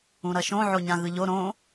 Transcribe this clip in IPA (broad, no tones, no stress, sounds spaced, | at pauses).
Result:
ũ ɾ ʌ ʃ õ ʕ o ɲ ã ɣ ɯ ʎ o ɾ õ